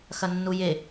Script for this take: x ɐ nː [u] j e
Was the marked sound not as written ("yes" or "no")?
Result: no